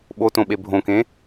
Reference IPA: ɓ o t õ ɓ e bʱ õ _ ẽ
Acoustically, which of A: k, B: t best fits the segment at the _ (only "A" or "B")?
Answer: A